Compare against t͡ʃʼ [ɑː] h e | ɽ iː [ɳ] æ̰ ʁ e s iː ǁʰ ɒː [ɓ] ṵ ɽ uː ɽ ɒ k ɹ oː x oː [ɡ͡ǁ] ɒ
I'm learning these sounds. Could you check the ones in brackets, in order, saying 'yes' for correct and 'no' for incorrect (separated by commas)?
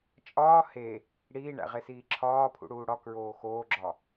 no, yes, no, yes